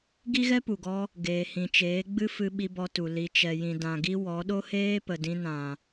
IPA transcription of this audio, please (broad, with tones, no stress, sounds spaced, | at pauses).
ɡ i˦ ɣ ɛ˦ p u˨ ɡ ɔ˧ | ɡ eː˨ h ĩ˨ t͡ʃ eː˨˦ ɡ͡b ɨ˦ f ɨ˧ ɓ i˧ b ɔ˧ t u˨ l i˨ t͡ʃ ɛ˨ j ĩ˨ d ã˨ ɡ i˧ w ɔ˨˦ ɗ o˦ h eː˦ p ə˨ d ĩ˧ n ã˨